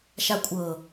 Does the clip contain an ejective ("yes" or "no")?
yes